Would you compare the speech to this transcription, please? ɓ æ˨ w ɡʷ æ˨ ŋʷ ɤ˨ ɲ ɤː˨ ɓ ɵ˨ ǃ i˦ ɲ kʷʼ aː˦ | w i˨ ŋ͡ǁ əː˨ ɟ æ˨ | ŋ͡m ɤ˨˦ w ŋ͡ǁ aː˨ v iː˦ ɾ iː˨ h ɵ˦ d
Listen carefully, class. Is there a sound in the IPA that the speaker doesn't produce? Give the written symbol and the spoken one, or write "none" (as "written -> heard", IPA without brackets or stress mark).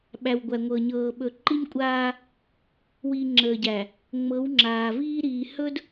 none